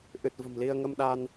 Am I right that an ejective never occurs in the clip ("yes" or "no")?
yes